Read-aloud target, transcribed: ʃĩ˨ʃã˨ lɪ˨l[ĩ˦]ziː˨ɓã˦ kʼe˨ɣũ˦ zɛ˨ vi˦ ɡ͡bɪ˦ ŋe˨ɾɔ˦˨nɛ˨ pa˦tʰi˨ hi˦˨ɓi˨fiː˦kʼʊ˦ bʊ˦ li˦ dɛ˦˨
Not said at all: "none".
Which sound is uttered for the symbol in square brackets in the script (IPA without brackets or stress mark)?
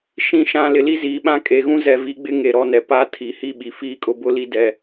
i˦